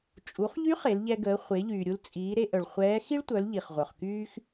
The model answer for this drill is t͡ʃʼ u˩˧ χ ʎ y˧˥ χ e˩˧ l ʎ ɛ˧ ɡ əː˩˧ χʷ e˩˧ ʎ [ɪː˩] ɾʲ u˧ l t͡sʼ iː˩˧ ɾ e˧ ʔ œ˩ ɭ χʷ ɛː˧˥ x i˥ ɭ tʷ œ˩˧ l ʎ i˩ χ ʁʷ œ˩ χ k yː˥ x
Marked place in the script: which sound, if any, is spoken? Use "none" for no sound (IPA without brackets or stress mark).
yː˩